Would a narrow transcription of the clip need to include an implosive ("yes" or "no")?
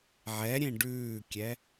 no